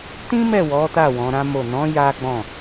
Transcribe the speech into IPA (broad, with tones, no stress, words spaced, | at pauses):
tĩ˦mɛ˦˨ wɔ˨˦ta˦˨ wɔ̃˨˦ɾã˦mo˦˨ nɔ̃˨˦ ja˦ɡ͡bɔ̃˦˨